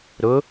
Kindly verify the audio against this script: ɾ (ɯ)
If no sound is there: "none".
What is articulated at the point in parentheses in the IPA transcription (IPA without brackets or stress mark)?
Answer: ʊ